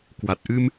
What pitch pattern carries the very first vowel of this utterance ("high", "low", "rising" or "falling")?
low